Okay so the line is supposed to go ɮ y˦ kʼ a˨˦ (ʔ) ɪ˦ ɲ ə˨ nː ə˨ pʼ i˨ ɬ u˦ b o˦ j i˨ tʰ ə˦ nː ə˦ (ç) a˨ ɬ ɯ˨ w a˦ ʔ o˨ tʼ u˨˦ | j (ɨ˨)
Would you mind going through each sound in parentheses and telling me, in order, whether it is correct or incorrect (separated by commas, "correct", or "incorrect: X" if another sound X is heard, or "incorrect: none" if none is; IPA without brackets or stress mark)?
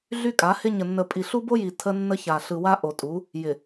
incorrect: h, correct, incorrect: ɪ˨